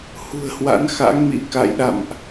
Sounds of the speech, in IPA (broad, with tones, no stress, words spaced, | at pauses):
hṳ˨˩ə̯hwa̰˧˥nxa̰˧˥ŋmḭ˧˥ ka̰˧˨jɗa̰˧˨mʔ